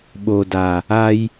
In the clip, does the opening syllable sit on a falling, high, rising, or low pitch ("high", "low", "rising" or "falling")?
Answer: low